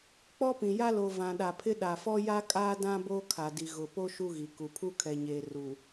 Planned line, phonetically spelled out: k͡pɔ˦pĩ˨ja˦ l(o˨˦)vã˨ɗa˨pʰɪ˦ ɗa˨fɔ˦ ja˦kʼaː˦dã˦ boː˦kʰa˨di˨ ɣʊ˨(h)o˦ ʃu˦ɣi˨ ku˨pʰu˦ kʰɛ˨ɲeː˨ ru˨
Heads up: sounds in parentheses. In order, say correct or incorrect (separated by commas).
incorrect, incorrect